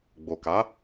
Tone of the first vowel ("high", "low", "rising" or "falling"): low